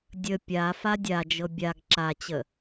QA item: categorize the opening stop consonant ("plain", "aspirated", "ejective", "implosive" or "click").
plain